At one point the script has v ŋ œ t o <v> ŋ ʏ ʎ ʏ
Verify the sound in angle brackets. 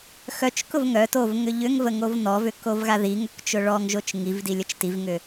correct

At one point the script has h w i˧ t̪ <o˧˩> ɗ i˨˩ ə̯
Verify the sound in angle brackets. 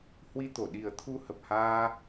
correct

